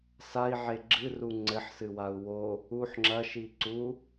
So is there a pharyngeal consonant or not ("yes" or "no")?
yes